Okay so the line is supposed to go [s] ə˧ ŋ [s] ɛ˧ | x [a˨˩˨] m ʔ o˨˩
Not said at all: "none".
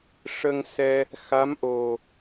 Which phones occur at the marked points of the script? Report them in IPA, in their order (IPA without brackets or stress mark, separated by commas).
ʂ, s, a˧˥